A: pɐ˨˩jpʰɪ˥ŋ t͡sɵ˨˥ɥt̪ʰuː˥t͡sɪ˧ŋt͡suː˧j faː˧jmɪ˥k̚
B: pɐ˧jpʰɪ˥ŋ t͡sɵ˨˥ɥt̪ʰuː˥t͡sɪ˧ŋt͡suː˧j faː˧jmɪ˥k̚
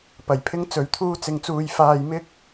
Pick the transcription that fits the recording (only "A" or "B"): A